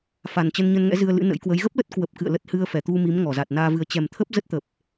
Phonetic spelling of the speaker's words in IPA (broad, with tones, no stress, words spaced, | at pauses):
fa˨˩nt͡ɕə˧nɲə˧nŋɛ̰˧˥ zɨ˧ə̯lɨ̰˧˥nə̰˧˥jkwə˨˦j ɣə˦˥p̚lə˦˥t̚ kwə˨˩p̚kɨ̰˧˨ə̯ lə˦˥t̚ hɨ˧ə̯fɛ˧˩t̪u˧ mi˨˦mŋɔ˧˩za˨˩t̚naː˧ vɨ˨˩ə̯t͡ɕɛ˨˩mt̪ʰə˦˥p̚ zə˦˥t̚t̪ə˨˩p̚